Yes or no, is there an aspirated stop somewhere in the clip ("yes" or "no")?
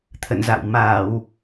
yes